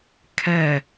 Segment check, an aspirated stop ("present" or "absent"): present